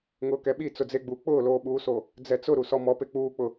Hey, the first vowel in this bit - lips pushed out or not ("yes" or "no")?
yes